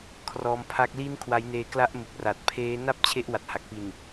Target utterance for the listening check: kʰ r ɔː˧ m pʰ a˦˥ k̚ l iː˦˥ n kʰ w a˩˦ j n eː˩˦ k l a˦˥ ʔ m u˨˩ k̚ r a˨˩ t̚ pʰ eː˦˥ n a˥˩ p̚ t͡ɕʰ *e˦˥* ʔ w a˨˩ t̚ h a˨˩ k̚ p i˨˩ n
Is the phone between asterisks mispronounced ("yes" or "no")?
no